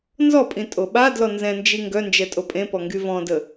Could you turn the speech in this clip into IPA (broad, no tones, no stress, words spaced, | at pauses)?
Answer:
nzɔpʼĩ tʼoɓa dlɔnzɛ̃nd͡ʒi ŋɡœnd͡ʒɛtʼo pʼẽpɔŋɡy vɔ̃də